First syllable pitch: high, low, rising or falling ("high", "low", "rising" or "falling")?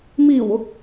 low